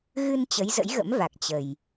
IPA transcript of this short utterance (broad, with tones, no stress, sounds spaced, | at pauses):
ɣ ɨ˧ n t͡ɕ ə˨˦ j z ə̰˧˥ j ɣ ə̰˧˥ m v a˨˩ k̚ t͡ɕ ə˨˩ j